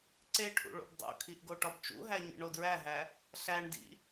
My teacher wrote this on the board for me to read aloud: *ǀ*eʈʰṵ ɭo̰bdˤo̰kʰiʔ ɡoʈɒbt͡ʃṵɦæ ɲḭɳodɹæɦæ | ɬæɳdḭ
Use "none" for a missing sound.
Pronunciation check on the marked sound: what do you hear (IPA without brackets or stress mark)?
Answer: ǀ